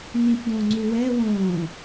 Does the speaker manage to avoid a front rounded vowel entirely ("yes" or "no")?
yes